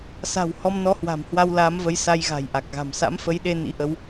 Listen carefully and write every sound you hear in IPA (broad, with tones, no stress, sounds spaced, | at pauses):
s a̤˨˩ w h ɔ˧ m n ɔ˨˦ h w a̤˨˩ m h w a˧ w l aː˨˦ m v ə˨˦ j s a˧ j ɣ a̤˨˩ j ʔ a˨˩ k̚ ɣ a̤˨˩ m s a̰˧˥ m f ə˨˦ j ɗ e˧ n ḭ˧˥ ʔ ə˨˦ w